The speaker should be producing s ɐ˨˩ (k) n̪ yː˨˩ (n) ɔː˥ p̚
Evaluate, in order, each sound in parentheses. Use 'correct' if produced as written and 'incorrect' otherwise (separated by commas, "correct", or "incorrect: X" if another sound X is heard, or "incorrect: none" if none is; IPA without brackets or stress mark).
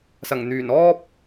incorrect: ŋ, correct